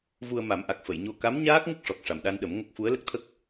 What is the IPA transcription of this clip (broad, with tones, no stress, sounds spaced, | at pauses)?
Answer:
v u˧ ə̯ m a˨˩˦ m ʔ a˨˩ k̚ f ə˨˩˨ j ɲ o˧ k a˧˥ m ɲ aː˦˥ k̚ ŋ ə˦˥ k̚ ʂ ɔ˨˩ k̚ ʂ a˨˩ m ɗ a˧ n ɗ ə˨˩˦ m ŋ ə˦˥ k̚ f u˧˥ ə̯ l ə˦˥ k̚ t̪ʰ ə˦˥ k̚